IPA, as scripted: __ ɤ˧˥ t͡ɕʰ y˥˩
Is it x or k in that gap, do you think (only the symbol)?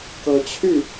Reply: k